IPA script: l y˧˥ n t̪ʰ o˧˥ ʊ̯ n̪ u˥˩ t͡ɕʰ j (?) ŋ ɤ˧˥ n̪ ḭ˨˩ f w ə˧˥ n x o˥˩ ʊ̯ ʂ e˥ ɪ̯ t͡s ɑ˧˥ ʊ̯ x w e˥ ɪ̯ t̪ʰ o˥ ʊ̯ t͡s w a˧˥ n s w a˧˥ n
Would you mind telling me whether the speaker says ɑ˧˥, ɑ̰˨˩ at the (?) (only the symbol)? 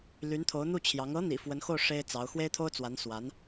ɑ˧˥